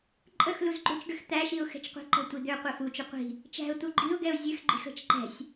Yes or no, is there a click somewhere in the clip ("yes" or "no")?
yes